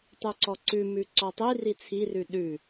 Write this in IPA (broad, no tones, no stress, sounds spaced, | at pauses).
tˤ ʉ ǀ ɔ ǀ ʉ m ʉ ǀ ɔ tˤ i r i t͡sʰ i r ʉ ɗ ʉ